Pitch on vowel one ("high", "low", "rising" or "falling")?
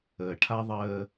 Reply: low